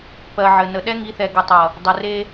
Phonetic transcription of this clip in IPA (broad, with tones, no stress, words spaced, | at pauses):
pɜ˨ʕɘ˨ nə˨ɗɛ˦ŋi˨˦θɛ˨ ɡɘ˨tˤʌ˨ | dˤɘ˨re˦